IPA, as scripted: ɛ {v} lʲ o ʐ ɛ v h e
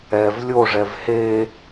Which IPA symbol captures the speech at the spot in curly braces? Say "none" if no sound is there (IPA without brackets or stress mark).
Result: v